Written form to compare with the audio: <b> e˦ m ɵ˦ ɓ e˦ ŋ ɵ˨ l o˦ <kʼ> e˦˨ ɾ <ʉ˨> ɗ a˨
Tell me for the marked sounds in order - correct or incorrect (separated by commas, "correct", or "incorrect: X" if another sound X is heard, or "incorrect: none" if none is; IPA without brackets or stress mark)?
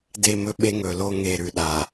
incorrect: d, incorrect: ŋ, correct